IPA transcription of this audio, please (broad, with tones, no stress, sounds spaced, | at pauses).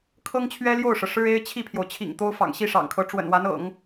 kʰ ɤ˥ ŋ t͡ɕʰ ɥ ɛ˥ l j o˥˩ ʊ̯ ʂ ɤ˩ ʂ ɻ̩˥ e˥ ɪ̯ t͡ɕʰ i˥˩ pʰ j o˩ ʊ̯ t͡ɕʰ ḭ˨˩ ŋ t̪ o˥ ʊ̯ f ɑ̰˨˩ ŋ ɕ i˥˩ ʂ ɑ̰˨˩ ŋ kʰ ɤ˧˥ ʈ͡ʂ w ə̰˨˩ n w a˧˥ n ɤ̰˨˩˦ ŋ